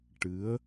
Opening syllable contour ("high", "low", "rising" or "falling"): rising